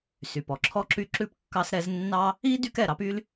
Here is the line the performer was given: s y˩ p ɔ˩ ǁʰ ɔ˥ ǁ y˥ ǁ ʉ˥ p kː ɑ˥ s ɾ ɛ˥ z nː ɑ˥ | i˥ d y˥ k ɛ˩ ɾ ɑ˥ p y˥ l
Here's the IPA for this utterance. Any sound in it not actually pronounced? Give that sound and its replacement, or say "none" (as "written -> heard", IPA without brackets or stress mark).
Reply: none